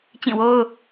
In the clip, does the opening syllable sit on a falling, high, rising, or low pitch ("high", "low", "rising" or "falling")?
falling